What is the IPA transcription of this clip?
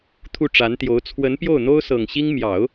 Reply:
t̪ʰ u˥˩ ʈ͡ʂ a˧˥ n t̪ j o˧˥ ʊ̯ t͡sʰ w ə˧˥ n p j o˥˩ ʊ̯ n̪ o˥ ʊ̯ s ɤ˨˩ ŋ ɕ i˥ ŋ m j ɑ˨˩˦ ʊ̯

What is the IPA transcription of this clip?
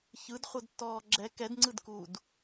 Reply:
ç ɯ d χʷ ɤ d tː ɔː ɡ͡ǁ ɛ k ɛ d ŋ͡ǀ ɯ d k uː d

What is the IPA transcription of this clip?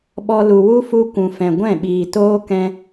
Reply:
ɓ ɔ˧ l u˨ w u˦ f u˧ kʷ ũ˨ f ɛ̃˨ ɡʷ ɛ̃˦˨ ɓ iː˨ t oː˦ k ɛ̃˧

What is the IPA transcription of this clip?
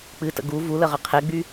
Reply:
k͡p ɨ t ə̰ ɡ u v u l ə ʁ ə qʰ e ɡ͡b y

